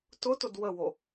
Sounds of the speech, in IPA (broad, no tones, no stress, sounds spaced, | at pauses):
t ʊ t ʊ d w ə w o